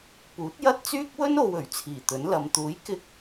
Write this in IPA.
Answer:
puː˨˥t̚jɐ˥t̚t͡syː˥k̚ wɵ˥no˨wɵ˨˩ɥ t͡sʰiː˨˩t̪ɵ˨˥nlɐ˨˧m t̪uː˨˥jkɪ˧k̚

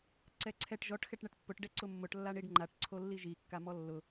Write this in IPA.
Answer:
ǀɛǀʰɛʈ ʒɔʈ xɛʈɳɛʈpːʊʈ ɖɛǀʊmːʊʈ lːaɳiɖŋ͡ǃaʈ ǀʰolːiʒi kːamɔlːʊ

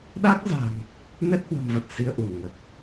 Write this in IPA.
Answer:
ɗa˦˥k̚za̤˨˩ŋ | nɛ˦˥t̚hwə̤˨˩mvə˨˩t̚ si˧ə̯ʔu˧˩nŋə˨˩t̚

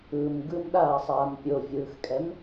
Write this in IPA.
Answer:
ɯm ɡɯmɗaːsˤaːm pʲovʲɯːxkʼɛm

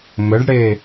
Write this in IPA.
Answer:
mɘɖɽe

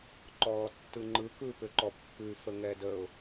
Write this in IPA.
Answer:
ǃɔːtːɯŋ͡ǃɯ kɯ pʏǃɔpːʉ fəŋɛdəʊ̯

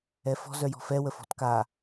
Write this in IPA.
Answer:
ɛfɔ̤ zœjɔ̤fɛ wəfɔ̤tka

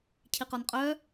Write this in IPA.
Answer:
cʰiqɔnqʼœ

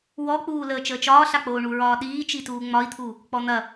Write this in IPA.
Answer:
wɔk͡puː ləːt͡ʃəːt͡ʃɒː ɬak͡poːɳuɹɒː ɗiːt͡ʃituː ŋ͡mɒi̯t̪ʰu | k͡pɔn̪ɐ

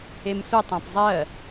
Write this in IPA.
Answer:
emsʷə tˤãpzˤɜ

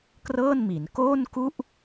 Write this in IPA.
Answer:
krɤː˥˩nmi˩˦n koː˥˩nku˥˩ʔ

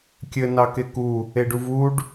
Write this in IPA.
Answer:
kʲɘ nɑkeku | eɖuvuɖ

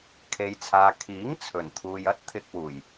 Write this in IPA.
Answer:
kʰe˨jt͡sʰaː˨ kʰiː˨˥ŋ t͡sʰɵ˨˩nt̪ʰuː˨jɐ˥t̚ t̪ʰɪ˧k̚wuː˨˩j

